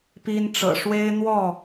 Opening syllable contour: high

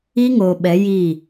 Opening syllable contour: high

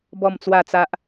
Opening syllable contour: falling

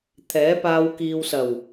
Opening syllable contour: rising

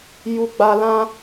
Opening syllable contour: low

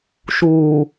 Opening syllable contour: low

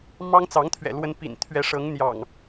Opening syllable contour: high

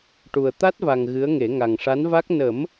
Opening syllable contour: low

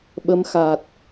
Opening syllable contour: rising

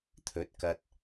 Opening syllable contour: rising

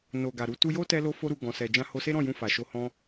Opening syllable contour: low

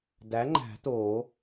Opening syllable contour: rising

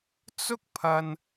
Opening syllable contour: high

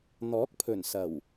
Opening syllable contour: rising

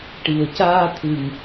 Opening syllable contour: low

